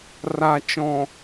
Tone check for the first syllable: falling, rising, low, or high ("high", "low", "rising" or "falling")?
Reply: low